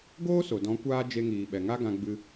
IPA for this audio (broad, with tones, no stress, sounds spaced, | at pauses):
ɡ oː˦ s o˨ d ɔ̃˨˦ kʷ aː˧ d͡ʒ e˧ ŋ iː˨ ɓ ɛ˨ ŋ a˦ ɡ ã˧ ɡ͡b ɨ˧